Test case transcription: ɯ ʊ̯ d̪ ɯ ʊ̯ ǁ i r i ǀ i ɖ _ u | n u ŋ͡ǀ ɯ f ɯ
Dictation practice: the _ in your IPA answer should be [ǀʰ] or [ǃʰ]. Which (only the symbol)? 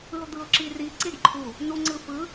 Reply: ǃʰ